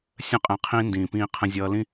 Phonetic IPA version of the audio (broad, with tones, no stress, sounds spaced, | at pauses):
sʲ ə̃˦ qʼ ɛ̃˨ qʰ ĩː˦ n d ĩː˩ p ĩː˨ qʰ ə̃˨ zʲ ʌː˨ l ĩ˦